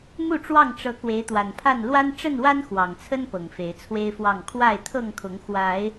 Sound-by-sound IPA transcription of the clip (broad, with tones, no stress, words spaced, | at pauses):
mu˥˨ʈ͡ʂwɑ˥˨ŋ ʈ͡ʂɤ˨˦ kwe˨˦ɪ̯t̪wa˨˩npʰa˥˨n lwa˦n ʈ͡ʂə˥˨nwa˦n xwɑ˨˩ŋt͡sʰə˦n pɤ˨˩ŋfe˨˦ɪ̯t͡sʰwe˦ɪ̯fwɑ˥˨ŋ kʰwa˥˨ɪ̯t̪ʰɤ˥˨ŋkʰʊ˨˦ŋ xwa˨˦ɪ̯